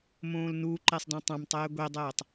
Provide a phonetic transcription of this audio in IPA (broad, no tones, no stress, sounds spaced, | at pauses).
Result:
m õː l n u ǃ e sˤ d ɔ̃ tˤ ã m tˤ ɛː ɡʷ e dˤ ɛː tˤ